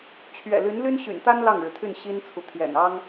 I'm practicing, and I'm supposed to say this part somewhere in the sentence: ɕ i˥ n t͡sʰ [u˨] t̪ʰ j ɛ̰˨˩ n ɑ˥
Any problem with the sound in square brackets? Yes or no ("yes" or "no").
no